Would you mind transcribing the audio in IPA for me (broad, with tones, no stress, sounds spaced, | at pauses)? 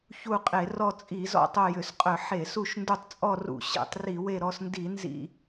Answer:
ç u˦˨ qʼ e˧˩˧ r ɔ˦˨ t͡sʼ i˧˩˧ z ɔ̰˦˨ tˤ œ˦˨ j ʏ˧˩˧ s qʼ œ˧˩˧ ħ e˧˩˧ s u˦˨ ʃ n d u˦˨ tˤ t͡sʼ ɔ˦˨ r ṵ˧˩˧ ɕ ḛ˧˩˧ tˤ r i˧˩˧ w e˦˨ ɾ ɔ˦˨ s n d i˧˩˧ n z ḭ˦˨